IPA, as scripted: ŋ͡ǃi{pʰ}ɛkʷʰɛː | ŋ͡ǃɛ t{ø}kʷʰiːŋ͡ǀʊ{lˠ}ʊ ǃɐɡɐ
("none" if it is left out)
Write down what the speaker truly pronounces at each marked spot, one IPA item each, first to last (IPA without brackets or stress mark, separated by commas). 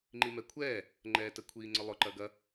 m, ə, lˠ